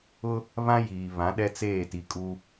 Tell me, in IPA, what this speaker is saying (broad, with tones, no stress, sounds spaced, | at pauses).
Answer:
ʊ˦ | β ã˦ j iː˨ β ã˨˦ ɗ ɛ˦ t͡s eː˦˨ t i˨ kʼ u˦